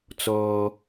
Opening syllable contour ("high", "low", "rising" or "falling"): low